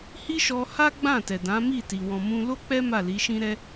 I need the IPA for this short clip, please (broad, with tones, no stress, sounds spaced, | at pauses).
h i˦ ʃ ɔ˧ h a˦ ɡ͡b ã˦˨ t ɛ˨ d ã˨˦ m i˦˨ t i˨ w ɔ̃˨ m ũ˧ l o˦ k͡p ɛ˦ m a˦˨ l i˨˦ ʃ ĩ˦ ɾ ɛ˦